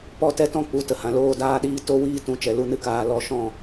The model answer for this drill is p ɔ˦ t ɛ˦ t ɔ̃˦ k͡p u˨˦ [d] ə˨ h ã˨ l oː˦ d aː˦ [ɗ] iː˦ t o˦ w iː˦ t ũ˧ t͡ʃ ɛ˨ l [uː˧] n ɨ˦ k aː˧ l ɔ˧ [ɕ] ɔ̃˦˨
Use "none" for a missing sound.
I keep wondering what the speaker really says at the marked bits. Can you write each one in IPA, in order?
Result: t, ɗ, u˧, ʃ

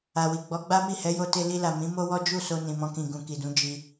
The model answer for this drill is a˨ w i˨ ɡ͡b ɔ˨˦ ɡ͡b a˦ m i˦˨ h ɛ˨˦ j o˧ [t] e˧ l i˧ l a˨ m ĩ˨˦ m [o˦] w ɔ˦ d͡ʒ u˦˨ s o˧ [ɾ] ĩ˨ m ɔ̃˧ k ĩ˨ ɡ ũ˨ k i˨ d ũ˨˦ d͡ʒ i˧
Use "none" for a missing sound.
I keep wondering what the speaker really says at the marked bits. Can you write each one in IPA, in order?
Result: t, o˦, n

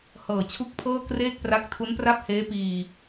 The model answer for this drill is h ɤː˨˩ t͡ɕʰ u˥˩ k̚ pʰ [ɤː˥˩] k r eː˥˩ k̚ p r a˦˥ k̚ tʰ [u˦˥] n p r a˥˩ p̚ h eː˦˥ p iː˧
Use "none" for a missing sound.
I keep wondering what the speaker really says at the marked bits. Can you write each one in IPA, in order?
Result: ɤː˥˩, u˦˥

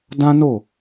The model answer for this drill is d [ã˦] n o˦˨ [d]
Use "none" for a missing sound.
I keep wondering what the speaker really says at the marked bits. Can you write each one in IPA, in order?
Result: ã˦, none

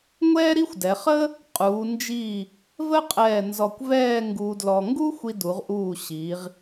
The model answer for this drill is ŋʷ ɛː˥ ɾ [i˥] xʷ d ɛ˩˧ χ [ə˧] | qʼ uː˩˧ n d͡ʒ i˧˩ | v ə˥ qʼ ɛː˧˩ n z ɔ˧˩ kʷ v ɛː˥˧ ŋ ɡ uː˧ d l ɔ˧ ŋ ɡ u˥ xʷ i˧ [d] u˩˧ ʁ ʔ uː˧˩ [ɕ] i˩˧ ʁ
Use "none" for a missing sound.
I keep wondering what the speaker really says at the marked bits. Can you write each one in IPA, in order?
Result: i˥, ə˥, d, ɕ

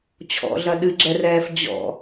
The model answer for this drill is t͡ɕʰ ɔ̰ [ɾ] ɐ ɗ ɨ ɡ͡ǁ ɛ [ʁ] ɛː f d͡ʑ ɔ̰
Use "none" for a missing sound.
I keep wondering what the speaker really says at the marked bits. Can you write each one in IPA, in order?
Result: ɮ, r

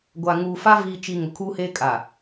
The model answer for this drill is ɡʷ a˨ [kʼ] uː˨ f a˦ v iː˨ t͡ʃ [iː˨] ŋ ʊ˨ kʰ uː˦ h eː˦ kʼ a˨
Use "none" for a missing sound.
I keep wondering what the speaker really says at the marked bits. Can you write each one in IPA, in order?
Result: ŋ, i˨

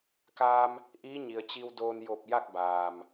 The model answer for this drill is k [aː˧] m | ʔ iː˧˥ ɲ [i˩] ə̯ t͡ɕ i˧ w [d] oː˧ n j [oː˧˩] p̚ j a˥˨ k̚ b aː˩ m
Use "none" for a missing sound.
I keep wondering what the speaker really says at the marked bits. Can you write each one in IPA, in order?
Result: aː˧, i˩, d, o˧˩

